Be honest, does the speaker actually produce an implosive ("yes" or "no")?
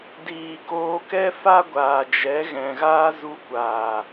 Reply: no